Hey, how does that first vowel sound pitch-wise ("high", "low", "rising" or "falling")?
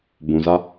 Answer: low